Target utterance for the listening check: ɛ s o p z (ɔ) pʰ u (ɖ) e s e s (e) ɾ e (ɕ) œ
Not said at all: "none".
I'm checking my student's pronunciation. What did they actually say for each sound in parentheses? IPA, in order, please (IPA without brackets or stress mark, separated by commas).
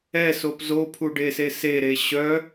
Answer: o, ɖ, e, ɕ